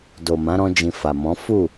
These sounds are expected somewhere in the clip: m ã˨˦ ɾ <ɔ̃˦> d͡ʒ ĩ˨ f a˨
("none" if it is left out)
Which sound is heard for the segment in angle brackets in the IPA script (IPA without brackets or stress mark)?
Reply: ɔ̃˧